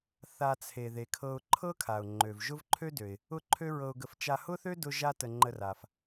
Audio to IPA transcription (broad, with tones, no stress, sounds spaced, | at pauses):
θ a˧ t͡sʰ e˩ ð e˩ kʰ ɤ˧ ʊ̯ ǃʰ ɤ˥ kʰ a˩ ʊ̯ ŋ͡ǃ ø˩ v ʒ ʊ˥ v ǃʰ ø˥ d ø˩ ɪ̯ | ʊ˥ ǃʰ ø˥ ɹ ɤ˧ ʊ̯ ɡ ə˧ f t͡ʃ a˧ h ʊ˥ θ ø˥ d ʊ˥ ʒ a˥ t ə˧ ŋ͡ǃ ə˧ r a˩ f